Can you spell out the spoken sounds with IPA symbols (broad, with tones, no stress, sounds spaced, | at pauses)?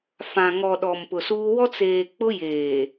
f ã˨ ŋ ɔ˨ ɗ ɔ˨ m p ʊ˨ s uː˦ w ɔ˦ t͡s eː˨ k͡p ʊ˦ j eː˨